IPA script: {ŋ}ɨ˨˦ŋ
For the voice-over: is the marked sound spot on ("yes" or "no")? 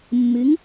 no